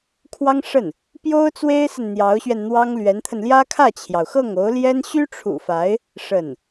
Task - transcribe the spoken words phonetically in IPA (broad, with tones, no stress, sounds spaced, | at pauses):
kʰ w ɑ˥ ŋ ʂ ə˥˩ n | p j o˥ ʊ̯ t͡s w e˥ ɪ̯ s ə˨ n n̪ j ɑ˧˥ ʊ̯ ɕ ɥ ɛ˧ n n̪ w ɑ˥ ŋ l ɥ ɛ˧˥ n t̪ʰ ə˧ n l j ä˥ kʰ ä˥˩ t͡ɕʰ j ɑ˩ ʊ̯ x ɤ˥˩ ŋ o˧˥ ʊ̯ l j ɛ˥ n ɕ y˥ ʈ͡ʂʰ ṵ˨˩ f a˧˥ ɪ̯ | ʂ ə˥˩ n